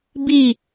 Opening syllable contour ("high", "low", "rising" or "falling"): falling